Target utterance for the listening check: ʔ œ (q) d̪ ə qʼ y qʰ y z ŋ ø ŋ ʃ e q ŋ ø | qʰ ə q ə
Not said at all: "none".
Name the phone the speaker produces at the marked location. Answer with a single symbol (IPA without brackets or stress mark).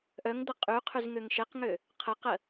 ŋ